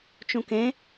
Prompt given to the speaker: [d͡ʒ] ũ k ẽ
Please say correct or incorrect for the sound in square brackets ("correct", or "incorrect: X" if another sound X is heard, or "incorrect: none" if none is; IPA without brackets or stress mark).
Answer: incorrect: t͡ʃ